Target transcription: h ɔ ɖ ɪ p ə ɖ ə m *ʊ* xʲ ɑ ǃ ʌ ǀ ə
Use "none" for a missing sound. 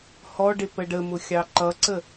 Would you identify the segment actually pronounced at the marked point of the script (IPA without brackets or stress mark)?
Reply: ʊ